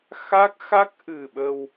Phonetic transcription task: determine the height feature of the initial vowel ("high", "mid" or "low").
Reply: low